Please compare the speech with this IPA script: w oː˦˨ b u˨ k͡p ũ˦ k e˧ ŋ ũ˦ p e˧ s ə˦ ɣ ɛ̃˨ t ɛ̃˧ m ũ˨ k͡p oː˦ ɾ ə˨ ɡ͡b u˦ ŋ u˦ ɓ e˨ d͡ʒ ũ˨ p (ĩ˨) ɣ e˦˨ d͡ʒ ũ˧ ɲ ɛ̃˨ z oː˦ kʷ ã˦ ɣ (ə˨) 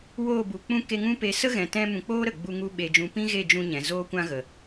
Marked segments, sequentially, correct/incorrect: incorrect: ĩ˦, correct

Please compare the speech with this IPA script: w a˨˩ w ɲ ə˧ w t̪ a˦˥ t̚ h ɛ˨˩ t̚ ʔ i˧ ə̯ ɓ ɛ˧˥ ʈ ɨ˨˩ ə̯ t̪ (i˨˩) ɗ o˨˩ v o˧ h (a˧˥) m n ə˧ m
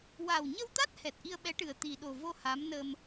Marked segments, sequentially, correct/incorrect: correct, correct

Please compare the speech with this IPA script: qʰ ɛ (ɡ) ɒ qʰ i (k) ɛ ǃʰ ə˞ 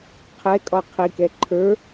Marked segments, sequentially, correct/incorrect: incorrect: kʼ, correct

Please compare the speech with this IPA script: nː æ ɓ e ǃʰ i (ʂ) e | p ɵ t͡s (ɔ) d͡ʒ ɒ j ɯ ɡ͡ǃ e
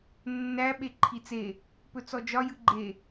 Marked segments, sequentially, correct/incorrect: incorrect: t͡s, correct

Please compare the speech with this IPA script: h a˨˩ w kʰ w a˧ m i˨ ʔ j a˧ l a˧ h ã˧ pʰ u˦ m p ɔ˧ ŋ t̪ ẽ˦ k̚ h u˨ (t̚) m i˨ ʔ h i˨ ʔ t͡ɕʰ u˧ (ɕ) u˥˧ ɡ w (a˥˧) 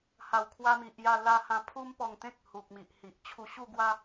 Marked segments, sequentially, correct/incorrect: incorrect: k̚, correct, incorrect: a˦

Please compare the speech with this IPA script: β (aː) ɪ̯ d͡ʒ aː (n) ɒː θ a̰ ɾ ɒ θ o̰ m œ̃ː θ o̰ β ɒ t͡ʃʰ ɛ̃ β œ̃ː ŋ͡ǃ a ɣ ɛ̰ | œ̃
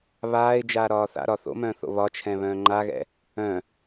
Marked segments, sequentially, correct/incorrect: correct, incorrect: ɾ

